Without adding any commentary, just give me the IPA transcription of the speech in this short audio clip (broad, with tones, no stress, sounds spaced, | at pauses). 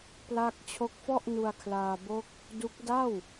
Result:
p l a˥˩ k̚ t͡ɕʰ o˦˥ k̚ f ɔ˥˩ ʔ n u˧ a̯ kʰ l aː˧ b o˦˥ k̚ | d u˦˥ k̚ d a˥˩ w